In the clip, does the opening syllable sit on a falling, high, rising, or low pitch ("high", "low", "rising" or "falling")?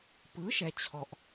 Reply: rising